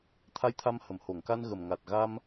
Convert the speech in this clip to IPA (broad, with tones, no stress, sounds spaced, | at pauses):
t̪ʰ a˧ j t̪ʰ a˧ m h ə˨˩˨ m h o˨˩˨ ŋ k a˧ n ɣ ə˨˩ m ŋ a˨˩ t̚ ɣ a˧ m